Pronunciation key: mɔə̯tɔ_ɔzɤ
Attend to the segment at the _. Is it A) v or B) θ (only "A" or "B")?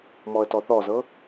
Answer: B